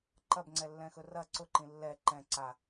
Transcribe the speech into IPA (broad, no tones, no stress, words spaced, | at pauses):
ǃɐbŋ͡ǀɛlːɛ̃xɵ rɐ ǀʊǃĩ lːɛ ǃɛ̃ ǀa